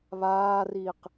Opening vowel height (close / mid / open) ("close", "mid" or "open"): open